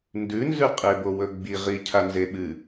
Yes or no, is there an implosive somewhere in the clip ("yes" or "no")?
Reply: yes